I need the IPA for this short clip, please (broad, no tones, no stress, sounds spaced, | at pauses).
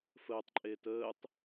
f əː tˤ ǃʼ eː t əː tˤ